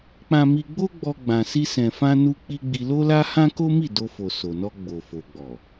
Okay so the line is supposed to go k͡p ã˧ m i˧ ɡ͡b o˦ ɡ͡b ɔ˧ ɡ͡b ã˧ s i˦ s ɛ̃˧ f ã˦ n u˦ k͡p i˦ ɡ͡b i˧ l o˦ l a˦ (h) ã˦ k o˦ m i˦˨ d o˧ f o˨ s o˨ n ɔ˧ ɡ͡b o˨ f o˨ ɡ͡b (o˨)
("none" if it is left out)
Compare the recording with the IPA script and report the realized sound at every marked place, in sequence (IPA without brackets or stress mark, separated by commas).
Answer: h, ɔ˨